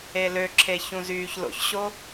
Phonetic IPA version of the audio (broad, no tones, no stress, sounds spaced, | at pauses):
e l ø ǁʰ e ç ũ z yː ç l o̰ ç ɕ o